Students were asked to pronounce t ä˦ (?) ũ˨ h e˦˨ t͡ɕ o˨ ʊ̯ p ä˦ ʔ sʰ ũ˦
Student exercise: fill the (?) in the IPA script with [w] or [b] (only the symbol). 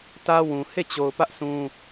w